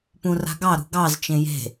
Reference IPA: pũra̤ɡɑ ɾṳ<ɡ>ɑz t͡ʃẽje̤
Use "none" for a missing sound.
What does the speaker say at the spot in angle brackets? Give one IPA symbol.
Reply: ɡ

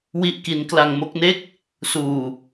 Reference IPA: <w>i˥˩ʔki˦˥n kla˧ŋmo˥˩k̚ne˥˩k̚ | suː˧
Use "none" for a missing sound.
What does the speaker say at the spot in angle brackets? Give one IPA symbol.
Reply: w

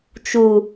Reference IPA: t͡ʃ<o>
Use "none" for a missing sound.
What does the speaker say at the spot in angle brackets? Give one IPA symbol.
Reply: u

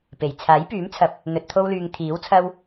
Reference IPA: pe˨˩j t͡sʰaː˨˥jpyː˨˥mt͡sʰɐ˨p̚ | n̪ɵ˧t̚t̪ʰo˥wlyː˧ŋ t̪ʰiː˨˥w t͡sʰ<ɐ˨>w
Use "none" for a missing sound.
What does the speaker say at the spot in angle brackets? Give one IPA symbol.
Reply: ɐ˧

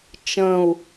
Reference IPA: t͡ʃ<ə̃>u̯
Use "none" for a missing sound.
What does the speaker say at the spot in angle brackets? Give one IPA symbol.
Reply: ə̃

